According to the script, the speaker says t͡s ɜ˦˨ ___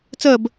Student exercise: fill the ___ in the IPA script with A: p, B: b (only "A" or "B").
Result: B